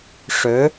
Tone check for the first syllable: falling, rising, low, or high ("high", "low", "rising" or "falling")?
rising